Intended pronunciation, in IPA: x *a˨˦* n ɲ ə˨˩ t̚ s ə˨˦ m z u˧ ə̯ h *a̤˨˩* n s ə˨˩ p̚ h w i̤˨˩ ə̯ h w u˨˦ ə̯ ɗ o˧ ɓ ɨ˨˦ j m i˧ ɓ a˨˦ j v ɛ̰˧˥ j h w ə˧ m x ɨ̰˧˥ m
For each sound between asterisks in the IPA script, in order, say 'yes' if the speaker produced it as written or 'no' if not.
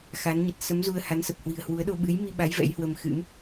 yes, no

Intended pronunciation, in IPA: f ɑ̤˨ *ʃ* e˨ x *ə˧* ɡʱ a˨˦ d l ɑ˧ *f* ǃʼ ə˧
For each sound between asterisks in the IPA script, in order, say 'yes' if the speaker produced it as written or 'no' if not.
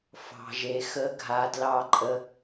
no, no, no

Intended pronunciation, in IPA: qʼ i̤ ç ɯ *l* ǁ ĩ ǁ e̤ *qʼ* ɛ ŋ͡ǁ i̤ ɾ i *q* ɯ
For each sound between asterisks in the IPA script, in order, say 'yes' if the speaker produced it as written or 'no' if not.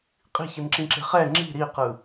no, no, yes

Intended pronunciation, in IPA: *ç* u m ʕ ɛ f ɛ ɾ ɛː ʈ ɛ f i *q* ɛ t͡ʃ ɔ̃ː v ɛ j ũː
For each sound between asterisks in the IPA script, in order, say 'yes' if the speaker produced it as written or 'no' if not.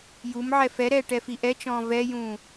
no, no

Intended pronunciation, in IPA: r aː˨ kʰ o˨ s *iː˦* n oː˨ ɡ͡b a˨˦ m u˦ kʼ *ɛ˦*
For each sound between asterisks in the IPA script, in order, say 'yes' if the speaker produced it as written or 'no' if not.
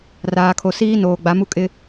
yes, no

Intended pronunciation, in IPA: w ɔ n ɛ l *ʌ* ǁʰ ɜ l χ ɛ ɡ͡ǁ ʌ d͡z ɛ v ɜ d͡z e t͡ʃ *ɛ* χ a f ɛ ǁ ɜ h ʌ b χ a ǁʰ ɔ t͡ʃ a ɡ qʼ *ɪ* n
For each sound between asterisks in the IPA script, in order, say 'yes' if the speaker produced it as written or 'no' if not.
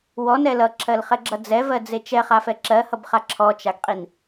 yes, yes, no

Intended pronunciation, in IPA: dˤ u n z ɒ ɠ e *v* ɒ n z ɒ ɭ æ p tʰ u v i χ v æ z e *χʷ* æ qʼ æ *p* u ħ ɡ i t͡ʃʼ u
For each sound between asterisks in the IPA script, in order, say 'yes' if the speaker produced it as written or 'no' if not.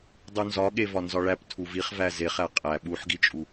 yes, no, no

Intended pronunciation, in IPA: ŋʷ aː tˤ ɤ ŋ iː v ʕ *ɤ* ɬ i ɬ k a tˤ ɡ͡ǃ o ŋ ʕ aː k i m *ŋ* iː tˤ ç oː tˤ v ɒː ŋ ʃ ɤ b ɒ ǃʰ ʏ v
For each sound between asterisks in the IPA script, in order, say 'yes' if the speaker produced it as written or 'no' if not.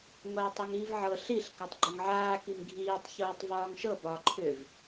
yes, no

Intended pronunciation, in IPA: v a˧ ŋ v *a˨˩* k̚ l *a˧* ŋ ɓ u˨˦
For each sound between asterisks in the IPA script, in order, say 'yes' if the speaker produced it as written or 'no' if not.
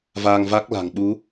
no, no

